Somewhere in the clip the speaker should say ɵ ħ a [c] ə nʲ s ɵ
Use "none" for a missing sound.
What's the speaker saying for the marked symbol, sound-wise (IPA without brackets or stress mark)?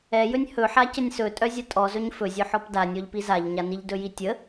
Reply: c